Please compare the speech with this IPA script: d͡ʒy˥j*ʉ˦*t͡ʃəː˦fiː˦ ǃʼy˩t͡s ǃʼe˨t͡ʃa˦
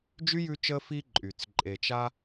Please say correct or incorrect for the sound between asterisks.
correct